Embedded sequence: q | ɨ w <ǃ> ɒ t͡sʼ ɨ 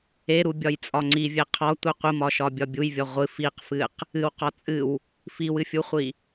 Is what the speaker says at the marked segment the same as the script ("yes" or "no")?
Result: no